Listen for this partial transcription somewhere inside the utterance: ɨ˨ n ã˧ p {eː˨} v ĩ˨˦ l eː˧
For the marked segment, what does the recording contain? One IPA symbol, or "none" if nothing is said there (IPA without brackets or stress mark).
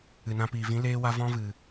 iː˨